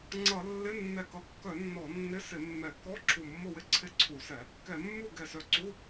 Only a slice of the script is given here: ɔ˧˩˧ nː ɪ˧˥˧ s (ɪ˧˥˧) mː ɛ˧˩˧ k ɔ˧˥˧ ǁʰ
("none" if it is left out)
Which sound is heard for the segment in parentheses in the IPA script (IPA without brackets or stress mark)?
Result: ɪ˧˩˧